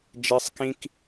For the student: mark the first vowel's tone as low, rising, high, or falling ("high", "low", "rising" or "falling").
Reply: high